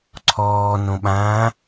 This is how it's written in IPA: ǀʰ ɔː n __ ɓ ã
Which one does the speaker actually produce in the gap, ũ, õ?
õ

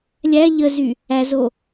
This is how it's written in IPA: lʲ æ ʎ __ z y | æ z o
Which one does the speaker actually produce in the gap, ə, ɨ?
ə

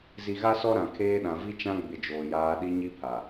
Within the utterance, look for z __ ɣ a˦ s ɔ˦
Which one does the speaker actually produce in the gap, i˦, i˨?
i˨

